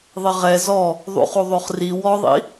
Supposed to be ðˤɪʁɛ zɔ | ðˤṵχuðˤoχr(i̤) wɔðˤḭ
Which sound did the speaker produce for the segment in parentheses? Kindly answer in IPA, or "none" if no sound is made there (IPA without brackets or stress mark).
i